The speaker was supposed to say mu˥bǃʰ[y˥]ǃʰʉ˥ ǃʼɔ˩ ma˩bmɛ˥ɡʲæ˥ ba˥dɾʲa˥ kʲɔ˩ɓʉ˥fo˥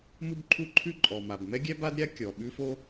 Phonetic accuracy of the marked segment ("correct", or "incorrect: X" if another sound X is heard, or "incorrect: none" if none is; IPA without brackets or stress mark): incorrect: u˥